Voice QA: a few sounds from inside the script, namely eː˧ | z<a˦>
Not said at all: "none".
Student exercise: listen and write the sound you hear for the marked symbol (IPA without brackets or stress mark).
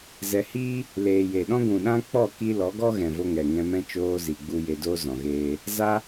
a˦